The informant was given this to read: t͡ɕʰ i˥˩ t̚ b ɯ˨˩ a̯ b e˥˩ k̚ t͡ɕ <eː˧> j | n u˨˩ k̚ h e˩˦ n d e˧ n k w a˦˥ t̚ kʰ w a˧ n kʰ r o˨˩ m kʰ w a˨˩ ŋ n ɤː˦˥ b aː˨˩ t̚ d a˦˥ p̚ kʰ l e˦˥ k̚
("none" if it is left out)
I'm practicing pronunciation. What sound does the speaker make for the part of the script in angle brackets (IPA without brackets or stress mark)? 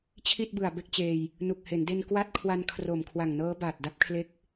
eː˧